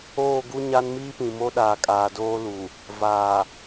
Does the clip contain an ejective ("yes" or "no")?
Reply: yes